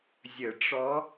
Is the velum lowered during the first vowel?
no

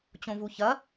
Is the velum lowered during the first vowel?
yes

